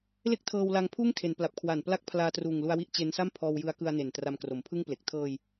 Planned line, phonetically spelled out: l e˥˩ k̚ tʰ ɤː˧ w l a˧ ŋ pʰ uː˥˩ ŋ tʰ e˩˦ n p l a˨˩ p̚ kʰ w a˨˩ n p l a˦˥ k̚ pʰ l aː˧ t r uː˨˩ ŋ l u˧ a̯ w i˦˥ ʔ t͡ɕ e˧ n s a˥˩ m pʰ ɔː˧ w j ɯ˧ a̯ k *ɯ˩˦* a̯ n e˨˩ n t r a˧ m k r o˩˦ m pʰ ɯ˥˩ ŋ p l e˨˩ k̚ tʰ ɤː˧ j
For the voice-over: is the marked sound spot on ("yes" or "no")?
no